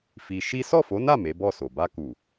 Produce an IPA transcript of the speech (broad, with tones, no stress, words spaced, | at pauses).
fi˧ ʃi˦ sɔ˦˨fo˨˦na˦˨ me˨˦bɔ˦˨so˨ ba˧ku˨